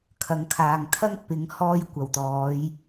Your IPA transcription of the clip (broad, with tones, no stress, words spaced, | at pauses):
kʰɐ˨˧ŋkʰaː˨ŋ t̪ʰɐ˥ŋ pɪ˨˥ŋ hɔː˥jkʷɐ˨˩wt̪ɔː˨˥j